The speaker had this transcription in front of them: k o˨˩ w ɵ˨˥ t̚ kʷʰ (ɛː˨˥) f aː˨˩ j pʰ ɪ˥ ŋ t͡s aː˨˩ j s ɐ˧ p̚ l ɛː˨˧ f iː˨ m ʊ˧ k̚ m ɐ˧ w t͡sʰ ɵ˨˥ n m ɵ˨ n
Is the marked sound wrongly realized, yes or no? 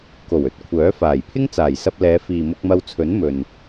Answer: yes